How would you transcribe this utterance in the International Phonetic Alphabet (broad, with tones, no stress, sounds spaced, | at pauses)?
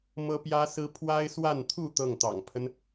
m ɤ˥ p j ä˥ s ɹ̩˥ pʰ w a˥ ɪ̯ s w a˥˧ n t̪ʰ u˥˧ t̪ ɤ˥˩ ŋ t̪ ɑ̰˨˩ ŋ pʰ ə˦ n